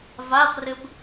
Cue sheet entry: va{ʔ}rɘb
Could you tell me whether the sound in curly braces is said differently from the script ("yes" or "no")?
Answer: yes